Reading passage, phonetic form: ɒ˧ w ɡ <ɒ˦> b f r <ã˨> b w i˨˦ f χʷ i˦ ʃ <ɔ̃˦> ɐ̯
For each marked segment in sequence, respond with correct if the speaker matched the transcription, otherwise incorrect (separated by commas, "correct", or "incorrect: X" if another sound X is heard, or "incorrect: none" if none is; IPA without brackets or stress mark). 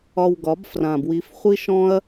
incorrect: ɒ˨˦, correct, correct